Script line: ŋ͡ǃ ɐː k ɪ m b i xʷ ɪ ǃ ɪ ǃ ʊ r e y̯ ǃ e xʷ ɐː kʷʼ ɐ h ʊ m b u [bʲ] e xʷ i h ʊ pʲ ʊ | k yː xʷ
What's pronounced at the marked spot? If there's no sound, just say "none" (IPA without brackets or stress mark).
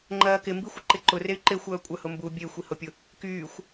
bʲ